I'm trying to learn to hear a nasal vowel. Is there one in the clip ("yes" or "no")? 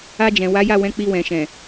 yes